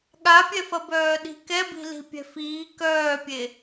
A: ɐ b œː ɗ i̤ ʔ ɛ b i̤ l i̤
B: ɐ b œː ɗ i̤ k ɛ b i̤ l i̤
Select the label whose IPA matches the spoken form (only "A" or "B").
B